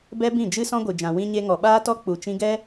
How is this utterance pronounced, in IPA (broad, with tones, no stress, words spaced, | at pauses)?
bɛ˦bĩ˦˨d͡ʒɨ˦ sɔ̃˦ɡʷɨ˨d͡ʒã˨ wĩ˧ɲe˧ ŋɔ˨ɓaː˦tɔ˦ k͡pu˨t͡ʃĩ˧ɡɛ˦